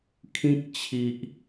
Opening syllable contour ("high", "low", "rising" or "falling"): high